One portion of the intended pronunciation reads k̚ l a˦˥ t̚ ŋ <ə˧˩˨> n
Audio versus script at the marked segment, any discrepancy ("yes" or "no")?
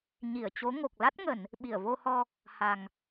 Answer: no